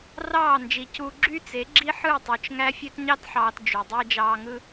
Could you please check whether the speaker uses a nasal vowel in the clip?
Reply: no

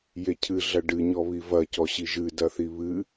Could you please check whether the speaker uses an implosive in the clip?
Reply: no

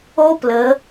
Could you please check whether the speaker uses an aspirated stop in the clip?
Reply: no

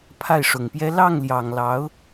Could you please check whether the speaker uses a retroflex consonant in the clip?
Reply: yes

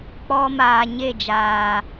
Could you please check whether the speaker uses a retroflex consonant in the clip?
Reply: no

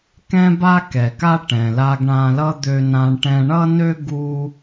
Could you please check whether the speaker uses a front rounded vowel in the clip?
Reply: yes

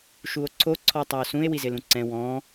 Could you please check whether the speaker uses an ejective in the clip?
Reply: no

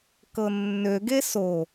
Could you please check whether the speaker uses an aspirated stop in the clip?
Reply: no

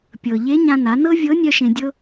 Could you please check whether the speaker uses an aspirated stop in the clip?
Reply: no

